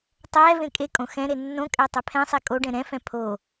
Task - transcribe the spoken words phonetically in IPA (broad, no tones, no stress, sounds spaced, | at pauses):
tˤ ɛ v ẽ kʼ e kʼ õ x ɛ̃ ɾ e nː õ kʼ ɛ tˤ ɛ pʰ ɛ̃ sˤ e kʼ o ɖ ɛ̃ ɾ ɛ̃ f ɛ̃ pʰ o